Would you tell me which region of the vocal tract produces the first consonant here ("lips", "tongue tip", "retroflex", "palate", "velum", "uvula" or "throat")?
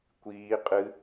velum